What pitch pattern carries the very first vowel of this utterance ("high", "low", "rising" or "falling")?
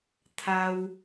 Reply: high